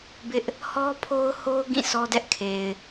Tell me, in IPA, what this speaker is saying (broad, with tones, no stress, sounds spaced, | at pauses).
b ɪ˦ ʔ | h ɔ˦ pʰ o˦ ʊ̯ h o˦ ʊ̯ ɡ ĩ˦˨ s ɔ˦ d ɛ˦ ʔ kʰ e˨ ɪ̯